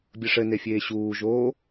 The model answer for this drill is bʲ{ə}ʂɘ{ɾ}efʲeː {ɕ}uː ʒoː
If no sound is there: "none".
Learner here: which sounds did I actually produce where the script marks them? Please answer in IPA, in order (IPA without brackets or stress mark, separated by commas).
ə, n, ɕ